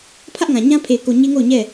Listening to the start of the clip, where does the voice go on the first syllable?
high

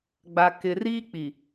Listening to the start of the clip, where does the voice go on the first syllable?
low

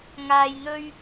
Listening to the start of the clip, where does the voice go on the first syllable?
low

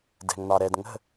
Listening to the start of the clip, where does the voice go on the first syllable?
low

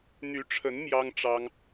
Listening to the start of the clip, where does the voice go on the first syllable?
rising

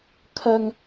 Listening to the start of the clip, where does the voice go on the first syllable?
high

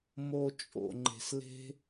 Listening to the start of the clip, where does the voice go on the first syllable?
low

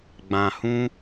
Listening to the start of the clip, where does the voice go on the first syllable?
low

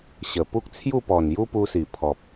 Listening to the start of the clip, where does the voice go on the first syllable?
low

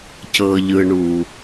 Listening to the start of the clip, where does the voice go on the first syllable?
high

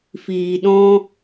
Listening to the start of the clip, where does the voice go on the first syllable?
low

